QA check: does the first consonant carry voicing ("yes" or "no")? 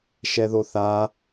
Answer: no